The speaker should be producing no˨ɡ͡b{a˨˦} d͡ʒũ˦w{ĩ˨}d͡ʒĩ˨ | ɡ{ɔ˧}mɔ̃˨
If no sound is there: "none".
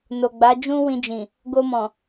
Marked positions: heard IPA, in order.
a˨˦, ĩ˧, o˧

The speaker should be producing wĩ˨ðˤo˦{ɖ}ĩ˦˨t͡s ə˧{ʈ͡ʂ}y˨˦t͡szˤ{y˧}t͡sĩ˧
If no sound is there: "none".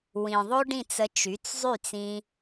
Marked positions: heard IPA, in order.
ɖ, t͡ʃ, y˦˨

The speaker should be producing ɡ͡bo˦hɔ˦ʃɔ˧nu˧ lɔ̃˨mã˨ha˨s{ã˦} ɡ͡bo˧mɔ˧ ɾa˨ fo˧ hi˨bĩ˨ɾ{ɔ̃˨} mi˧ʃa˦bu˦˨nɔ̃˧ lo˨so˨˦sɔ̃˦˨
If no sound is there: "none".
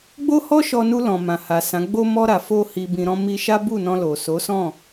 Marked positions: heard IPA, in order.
ã˨˦, ɔ̃˧

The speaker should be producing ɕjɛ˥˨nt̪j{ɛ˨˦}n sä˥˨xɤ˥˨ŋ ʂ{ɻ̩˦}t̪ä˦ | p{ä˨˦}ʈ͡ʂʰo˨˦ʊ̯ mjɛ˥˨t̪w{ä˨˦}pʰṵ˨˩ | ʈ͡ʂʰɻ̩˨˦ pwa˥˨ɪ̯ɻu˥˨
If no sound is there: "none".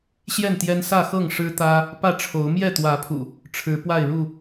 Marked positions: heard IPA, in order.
ɛ˦, ɻ̩˦, ä˥˨, ä˨˦

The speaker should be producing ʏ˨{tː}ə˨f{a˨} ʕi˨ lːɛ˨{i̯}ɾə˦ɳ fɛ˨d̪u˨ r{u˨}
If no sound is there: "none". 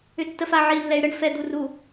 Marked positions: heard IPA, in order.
tː, a˨, y̯, u˨

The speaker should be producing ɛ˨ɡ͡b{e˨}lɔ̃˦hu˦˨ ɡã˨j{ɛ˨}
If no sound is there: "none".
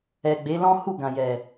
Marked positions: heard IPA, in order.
e˨˦, ɛ˨

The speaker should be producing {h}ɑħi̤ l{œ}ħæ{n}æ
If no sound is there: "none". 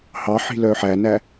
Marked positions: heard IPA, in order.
h, œ, n

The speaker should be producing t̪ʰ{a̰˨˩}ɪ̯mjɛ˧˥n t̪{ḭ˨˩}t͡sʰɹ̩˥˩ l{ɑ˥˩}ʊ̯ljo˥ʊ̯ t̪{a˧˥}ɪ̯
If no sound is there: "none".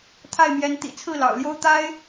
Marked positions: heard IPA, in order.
a˥˩, ḭ˨˩, ɑ̰˨˩, a˥

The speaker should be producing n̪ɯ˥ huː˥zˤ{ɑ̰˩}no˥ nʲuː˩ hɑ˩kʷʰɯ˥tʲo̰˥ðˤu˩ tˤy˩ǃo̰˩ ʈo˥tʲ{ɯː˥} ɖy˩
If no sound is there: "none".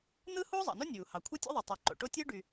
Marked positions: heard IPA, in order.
ɑ̰˩, ɯː˥

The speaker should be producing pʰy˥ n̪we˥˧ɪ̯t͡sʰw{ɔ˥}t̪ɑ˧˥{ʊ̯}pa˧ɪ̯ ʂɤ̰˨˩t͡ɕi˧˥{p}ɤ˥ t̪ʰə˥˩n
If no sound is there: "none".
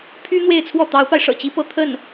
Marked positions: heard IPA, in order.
ɔ˥˩, ʊ̯, p

